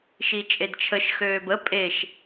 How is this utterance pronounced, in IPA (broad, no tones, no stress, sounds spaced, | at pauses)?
ʃ i t͡ʃʼ e d t͡ʃʰ ə ʃ x øː b ə pʼ e ʃ